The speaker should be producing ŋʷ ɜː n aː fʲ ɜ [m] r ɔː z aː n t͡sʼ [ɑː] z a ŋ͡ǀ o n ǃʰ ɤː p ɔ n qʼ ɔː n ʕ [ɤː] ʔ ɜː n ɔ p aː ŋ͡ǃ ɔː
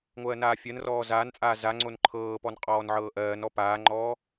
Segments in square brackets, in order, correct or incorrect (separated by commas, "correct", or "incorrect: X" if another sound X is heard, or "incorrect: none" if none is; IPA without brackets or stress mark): incorrect: n, incorrect: aː, correct